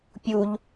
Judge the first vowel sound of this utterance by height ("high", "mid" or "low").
high